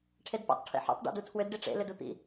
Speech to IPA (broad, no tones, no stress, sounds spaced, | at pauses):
ʈʰ e d p o̰ tˤ ʈʰ ḭ ħ ṵ tˤ ɖ o̰ d u tʰ w ʏ d ɖ i ʈ͡ʂ ḛ l ʏ d u t̪ ḭ